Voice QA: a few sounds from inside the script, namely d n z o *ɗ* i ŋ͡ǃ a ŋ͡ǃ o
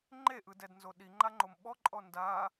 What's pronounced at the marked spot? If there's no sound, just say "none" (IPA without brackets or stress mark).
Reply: ɗ